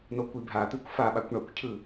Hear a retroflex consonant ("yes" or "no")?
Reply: yes